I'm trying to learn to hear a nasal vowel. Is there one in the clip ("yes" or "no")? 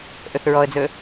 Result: no